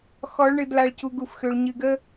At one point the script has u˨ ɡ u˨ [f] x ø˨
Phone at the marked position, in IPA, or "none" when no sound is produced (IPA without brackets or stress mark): f